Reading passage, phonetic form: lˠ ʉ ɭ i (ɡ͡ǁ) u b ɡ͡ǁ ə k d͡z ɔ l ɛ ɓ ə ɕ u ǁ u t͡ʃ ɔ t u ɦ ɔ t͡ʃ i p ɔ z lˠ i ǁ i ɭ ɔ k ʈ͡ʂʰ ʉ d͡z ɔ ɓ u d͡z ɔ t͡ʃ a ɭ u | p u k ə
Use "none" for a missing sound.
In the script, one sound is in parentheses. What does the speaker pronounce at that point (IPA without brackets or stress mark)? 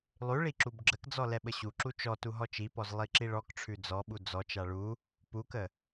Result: ǁ